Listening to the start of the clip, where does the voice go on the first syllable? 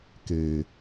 low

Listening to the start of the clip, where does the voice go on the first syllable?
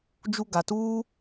high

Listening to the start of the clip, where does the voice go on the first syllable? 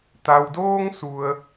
low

